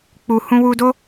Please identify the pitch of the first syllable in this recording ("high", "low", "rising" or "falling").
low